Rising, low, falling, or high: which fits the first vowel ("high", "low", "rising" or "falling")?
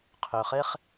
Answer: low